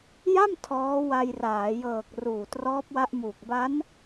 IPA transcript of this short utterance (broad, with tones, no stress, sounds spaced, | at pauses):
j a˥˩ m tʰ ɔː˦˥ w a˧ j r aː˩˦ j ɤː˨˩ k̚ r uː˨˩ t r ɔː˦˥ p̚ w a˦˥ ʔ m uː˨˩ k̚ b a˦˥ n